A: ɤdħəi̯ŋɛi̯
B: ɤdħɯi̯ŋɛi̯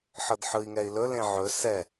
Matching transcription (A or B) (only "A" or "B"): B